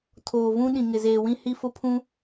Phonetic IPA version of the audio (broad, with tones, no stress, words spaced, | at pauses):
tʰoː˨vũ˦ ɗĩ˨ŋɪ˨zeː˨wĩ˦ hi˦fʊ˦ pʰũ˦